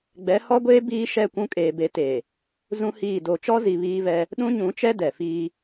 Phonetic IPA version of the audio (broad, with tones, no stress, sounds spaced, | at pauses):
ɡ͡b ɛ˨˦ h ɔ˦ ɡʷ eː˦ b iː˦ ʃ ɛ˦˨ kʷ ũ˦ kʼ eː˨ b e˨˦ t eː˨ | z ũ˦ h iː˦˨ d oː˨ t͡ʃ ɔ˦ z i˨ β iː˦ v ɛ˦ | ɗ ũ˦ ɲ ũ˨˦ t͡ʃ ɛ˦ d ɛ˨ f iː˦